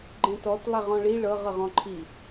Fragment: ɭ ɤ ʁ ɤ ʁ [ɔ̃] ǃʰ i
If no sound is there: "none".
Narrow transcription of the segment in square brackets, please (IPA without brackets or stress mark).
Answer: ɔ̃